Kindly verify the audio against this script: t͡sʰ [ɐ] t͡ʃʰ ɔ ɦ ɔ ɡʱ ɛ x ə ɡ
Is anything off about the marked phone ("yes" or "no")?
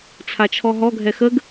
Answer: yes